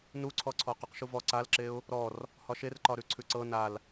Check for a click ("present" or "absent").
present